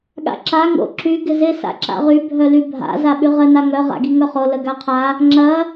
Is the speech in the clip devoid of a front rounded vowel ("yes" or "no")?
no